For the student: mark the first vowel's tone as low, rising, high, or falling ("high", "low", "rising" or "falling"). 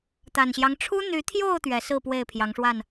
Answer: low